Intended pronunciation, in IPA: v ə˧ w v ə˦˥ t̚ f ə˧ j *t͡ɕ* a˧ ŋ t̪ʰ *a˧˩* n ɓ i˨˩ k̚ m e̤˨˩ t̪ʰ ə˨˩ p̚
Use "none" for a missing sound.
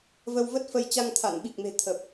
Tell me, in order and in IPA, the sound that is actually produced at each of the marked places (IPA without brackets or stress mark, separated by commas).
t͡ɕ, a˧˩